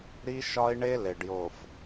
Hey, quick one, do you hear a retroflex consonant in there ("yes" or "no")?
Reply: yes